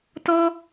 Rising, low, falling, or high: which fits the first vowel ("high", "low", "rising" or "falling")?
high